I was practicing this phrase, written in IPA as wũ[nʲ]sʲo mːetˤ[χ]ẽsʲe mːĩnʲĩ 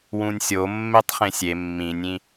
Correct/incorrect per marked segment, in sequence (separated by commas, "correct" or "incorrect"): correct, correct